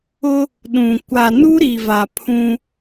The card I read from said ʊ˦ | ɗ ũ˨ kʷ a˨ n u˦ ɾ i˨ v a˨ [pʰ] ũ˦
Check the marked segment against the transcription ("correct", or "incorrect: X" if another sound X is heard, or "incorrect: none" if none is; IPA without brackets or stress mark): correct